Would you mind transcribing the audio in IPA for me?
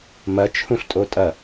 m ɐ t͡ʃʰ ũ ɬ tʼ o tʼ ɐ

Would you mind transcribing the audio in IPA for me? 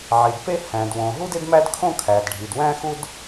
ʕ i˩ d p e˥ h æ̃˩ d w õ˩ ɦ u˥ d e˥ d m æ˥ d kʰ õ˥ kʰ æ˩ d ɖʱ i˩ d w æ̃˥ x u˥ d

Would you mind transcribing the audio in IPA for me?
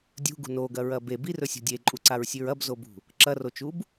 dʲ ṳ ɡ ṳ n o ɡ ɐ ɹ ɐ b e b i r ɵ sʲ o̤ dʲ e ǃʼ u ǀ a ɹ sʲ ʉ ɹ ɐ b z o b ṳ | ǁ ɐ r o t͡ʃ u b

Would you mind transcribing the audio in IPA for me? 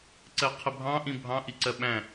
ǀ ɜ qʰ ə bʱ ɑ̃ ʔ ĩ bʱ ɑ̃ ʔ i ǀ ɜ ɓ æ̃

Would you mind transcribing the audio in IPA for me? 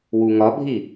w u ŋ ɒ bʱ i

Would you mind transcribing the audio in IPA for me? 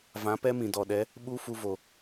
v ã˨˦ p ɛ˦ m ĩ˨ d ɔ˨ ɗ ɛ˨˦ | ɓ u˦ f u˧ v o˨

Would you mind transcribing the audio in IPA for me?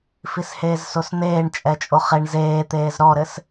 f i s h eː z s o s n̪ eː ɳ t͡ʃʼ ɛ t͡ʃʼ o χ e ɳ z eː t̪ eː z ɾ ɔ ɾ ɘ s

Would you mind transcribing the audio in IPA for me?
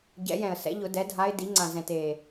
ɟ ɛ̰˨˩˦ j ɛ̃˨˩ ə̯ s ɛ̰˩˥ ʎ ʊ˨˩˦ d ɛ˩˥ dʱ a˧˥ ɪ̯ d i˩˥ ŋ͡ǀ ã˨˩ z ɛ̃˨˩ t e˨˩

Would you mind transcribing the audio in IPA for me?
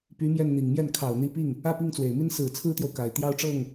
p y˧˥ m j ɛ˥˩ n n̪ i˨˩ ŋ m j ɛ˥˩ n kʰ ɑ˨˩ ʊ̯ n̪ i˧˥ p i˥˩ ŋ | ä˥˧ p i˥˩ ŋ t͡s w e˨˩ ɪ̯ m i˥ n s ɹ̩˨˩ t͡sʰ ɹ̩˥ t̪ j o˨ ʊ̯ k a˨˩ ɪ̯ t̪ j ɑ˥˧ ʊ̯ ʈ͡ʂ ɤ˥˩ ŋ

